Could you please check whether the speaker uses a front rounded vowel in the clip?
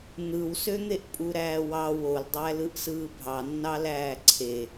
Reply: yes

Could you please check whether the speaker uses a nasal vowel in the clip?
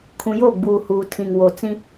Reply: yes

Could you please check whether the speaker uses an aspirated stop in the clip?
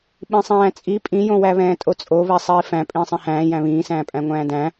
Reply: no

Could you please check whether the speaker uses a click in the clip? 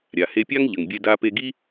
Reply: no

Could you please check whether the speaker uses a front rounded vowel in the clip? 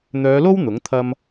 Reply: yes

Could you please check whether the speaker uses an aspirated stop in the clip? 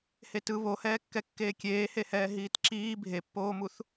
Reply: no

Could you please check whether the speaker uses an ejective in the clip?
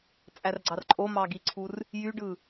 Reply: yes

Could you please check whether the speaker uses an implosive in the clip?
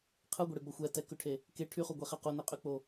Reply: no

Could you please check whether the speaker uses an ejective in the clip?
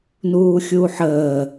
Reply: no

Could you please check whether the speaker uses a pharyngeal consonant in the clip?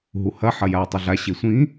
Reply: yes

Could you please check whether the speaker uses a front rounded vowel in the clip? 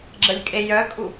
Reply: yes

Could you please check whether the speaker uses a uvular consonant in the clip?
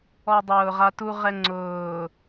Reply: yes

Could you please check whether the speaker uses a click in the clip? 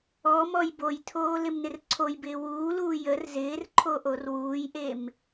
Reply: yes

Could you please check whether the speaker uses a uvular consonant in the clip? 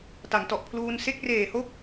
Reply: no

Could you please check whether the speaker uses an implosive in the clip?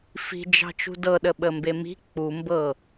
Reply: yes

